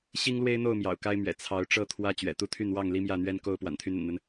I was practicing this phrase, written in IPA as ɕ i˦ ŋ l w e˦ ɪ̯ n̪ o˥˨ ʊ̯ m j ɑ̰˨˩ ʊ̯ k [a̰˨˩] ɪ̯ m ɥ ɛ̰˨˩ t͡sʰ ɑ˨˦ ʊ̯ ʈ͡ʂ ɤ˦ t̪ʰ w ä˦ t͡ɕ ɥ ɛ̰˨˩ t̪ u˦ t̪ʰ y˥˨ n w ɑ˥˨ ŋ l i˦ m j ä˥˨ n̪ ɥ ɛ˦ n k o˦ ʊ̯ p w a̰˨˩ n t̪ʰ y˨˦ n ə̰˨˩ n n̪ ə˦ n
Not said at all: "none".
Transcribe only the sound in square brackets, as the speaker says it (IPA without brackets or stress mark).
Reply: a˦